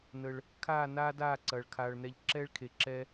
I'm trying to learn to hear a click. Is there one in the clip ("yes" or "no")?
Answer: yes